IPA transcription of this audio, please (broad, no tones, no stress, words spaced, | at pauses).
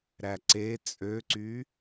ɾæǀe t͡sʼøǀy